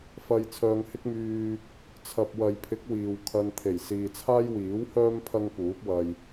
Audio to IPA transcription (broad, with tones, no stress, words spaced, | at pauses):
fɐ˨j t͡sʰœː˨ŋhɪ˥k̚myː˧ | t͡sʰɐ˨p̚wɐ˨jpʰɪ˨˥k̚ wiː˨w kʰɐ˧nt̪ʰe˨˩j siː˨t͡sʰaː˥jwiː˨˥whœː˥m pʰɐ˥ŋpuː˨˥p̚wɐ˧j